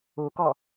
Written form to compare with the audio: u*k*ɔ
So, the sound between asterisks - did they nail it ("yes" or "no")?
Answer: yes